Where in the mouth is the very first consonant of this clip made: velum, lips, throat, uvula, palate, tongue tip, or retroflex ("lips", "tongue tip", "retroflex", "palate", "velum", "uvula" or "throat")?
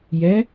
palate